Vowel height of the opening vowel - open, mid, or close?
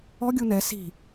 mid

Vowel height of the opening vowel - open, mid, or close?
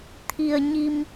close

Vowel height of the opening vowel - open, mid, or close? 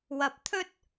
open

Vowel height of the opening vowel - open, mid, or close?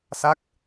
open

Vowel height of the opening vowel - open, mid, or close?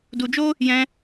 close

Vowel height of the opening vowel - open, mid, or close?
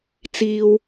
close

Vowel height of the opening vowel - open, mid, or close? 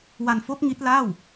open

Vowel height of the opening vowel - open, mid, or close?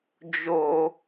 mid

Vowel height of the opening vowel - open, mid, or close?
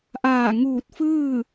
open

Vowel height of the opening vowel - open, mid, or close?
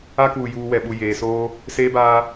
open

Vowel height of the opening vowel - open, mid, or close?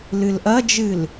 close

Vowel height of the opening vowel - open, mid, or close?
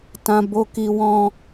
open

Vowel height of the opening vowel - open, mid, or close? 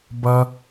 mid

